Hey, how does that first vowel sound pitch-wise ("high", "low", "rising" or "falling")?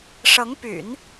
rising